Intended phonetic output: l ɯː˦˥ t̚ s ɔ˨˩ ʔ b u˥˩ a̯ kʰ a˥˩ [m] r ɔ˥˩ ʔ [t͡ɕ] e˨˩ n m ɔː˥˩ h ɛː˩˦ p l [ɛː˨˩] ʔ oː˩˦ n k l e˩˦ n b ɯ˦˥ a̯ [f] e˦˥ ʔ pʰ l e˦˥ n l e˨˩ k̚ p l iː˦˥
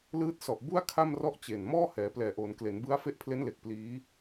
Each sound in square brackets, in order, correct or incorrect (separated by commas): correct, correct, correct, correct